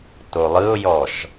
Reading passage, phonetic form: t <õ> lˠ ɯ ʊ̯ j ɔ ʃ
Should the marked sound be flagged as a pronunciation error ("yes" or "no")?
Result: yes